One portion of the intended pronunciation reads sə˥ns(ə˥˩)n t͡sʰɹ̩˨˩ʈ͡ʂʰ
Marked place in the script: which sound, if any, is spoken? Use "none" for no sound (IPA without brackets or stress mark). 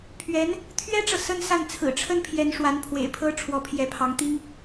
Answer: a˥˩